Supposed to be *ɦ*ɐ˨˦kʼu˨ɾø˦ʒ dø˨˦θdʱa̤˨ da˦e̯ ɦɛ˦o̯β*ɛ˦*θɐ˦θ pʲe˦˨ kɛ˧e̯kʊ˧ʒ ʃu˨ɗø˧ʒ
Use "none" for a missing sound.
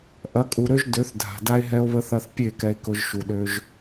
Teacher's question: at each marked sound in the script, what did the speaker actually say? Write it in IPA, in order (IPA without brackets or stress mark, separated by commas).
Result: ʔ, ə˦